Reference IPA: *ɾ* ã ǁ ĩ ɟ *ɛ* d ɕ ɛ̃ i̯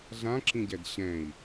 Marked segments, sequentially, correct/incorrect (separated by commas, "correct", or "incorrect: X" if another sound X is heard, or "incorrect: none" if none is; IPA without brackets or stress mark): incorrect: ɮ, correct